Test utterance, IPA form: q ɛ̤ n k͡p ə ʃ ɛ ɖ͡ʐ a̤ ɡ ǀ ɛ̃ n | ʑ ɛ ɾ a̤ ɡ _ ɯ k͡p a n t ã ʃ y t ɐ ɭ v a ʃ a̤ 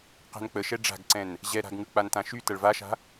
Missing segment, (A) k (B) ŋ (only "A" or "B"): B